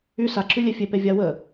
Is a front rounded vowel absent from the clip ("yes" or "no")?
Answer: no